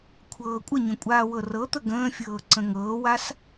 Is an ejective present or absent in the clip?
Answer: present